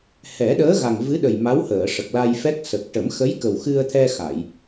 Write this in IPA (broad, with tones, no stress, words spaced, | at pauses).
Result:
hɛ˨˩˦ɗəː˧˥ɣa˨˩ŋ vɨ˧˥ɗə˨˩j ma˧˥whəː˨˩˨ʂə˨˩k̚la˧j fɛ˦˥k̚sə˨˩k̚ ʈə˨˩˦mxə˧˥jkə˨˩wxɨ˧ə̯ t̪ʰɛ˧xa˨˩˨j